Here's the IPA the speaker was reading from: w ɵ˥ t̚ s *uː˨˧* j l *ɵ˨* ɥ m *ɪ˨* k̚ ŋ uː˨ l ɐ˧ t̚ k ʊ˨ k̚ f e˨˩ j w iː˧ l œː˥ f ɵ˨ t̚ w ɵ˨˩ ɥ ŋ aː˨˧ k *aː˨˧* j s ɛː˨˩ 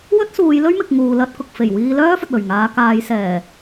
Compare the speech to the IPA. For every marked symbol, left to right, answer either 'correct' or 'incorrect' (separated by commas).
correct, incorrect, correct, correct